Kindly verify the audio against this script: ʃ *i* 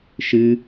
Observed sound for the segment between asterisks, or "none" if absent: ɨ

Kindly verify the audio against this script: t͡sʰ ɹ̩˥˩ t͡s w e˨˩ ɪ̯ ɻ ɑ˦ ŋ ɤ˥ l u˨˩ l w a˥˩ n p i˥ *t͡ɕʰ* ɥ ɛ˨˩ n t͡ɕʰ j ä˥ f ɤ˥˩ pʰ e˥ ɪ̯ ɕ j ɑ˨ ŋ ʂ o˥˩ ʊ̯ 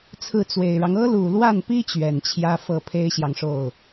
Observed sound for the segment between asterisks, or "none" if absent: t͡ɕ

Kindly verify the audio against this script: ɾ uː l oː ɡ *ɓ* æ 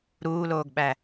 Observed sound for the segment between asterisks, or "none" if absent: ɓ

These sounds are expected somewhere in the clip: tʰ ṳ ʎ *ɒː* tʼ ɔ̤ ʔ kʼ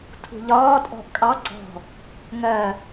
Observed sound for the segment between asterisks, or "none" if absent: ɒː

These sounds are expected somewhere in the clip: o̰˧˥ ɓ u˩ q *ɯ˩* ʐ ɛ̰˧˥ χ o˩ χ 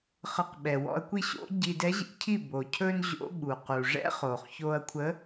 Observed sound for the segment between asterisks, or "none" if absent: u˩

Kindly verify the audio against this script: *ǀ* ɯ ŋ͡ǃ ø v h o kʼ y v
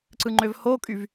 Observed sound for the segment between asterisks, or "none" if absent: ǀ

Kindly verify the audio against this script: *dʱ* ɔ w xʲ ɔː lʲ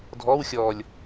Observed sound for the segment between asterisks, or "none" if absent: dʱ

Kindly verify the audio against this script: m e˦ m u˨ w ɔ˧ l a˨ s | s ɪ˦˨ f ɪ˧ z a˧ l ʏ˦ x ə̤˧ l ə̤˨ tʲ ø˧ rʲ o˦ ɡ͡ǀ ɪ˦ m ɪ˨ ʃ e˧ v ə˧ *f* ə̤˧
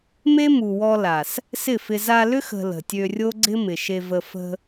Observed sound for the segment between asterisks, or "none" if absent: f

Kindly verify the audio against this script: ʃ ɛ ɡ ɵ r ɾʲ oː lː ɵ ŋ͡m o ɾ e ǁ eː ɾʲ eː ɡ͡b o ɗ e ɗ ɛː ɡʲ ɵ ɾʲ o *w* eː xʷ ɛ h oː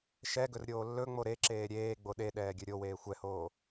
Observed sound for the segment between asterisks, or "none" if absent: w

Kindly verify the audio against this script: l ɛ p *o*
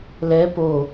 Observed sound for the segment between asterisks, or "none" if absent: o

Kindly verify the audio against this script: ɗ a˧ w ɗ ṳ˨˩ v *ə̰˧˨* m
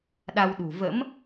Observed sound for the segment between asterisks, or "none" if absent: ə̰˧˥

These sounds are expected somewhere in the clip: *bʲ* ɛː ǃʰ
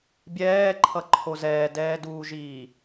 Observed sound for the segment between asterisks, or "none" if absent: bʲ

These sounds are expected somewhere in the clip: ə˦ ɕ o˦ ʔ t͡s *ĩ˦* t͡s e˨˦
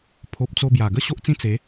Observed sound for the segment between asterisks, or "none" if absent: ĩ˦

